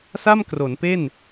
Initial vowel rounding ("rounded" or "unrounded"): unrounded